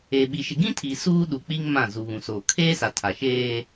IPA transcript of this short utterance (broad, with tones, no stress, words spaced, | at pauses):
e˨ɓi˨ ʃɪ˨ɡĩ˦tʰi˨ suː˦ɗu˨k͡pi˦ŋ mã˦˨ zu˨βũ˨soː˨ kʰeː˦sa˨tʰa˨ʃeː˦